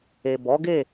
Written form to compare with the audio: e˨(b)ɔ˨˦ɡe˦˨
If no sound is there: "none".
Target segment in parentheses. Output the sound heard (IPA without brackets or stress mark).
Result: b